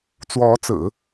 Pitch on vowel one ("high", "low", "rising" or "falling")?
rising